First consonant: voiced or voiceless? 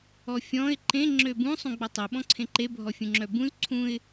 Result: voiceless